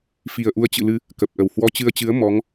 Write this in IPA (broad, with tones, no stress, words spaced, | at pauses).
fi˨˩ə̯ʔu˧ə̯t͡ɕɨ̰˧˨lɨ˧ | kə˨˩p̚ʔə˧˩w hwɔ˧t͡ɕɨ˧ə̯t͡ɕɨ˨˦ə̯ mɔ˨˦ŋ